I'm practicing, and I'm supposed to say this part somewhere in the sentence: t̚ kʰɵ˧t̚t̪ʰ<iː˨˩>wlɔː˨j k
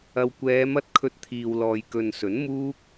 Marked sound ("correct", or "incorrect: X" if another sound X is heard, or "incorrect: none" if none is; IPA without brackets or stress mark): incorrect: iː˨